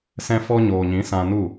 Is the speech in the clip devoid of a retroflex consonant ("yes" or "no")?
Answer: yes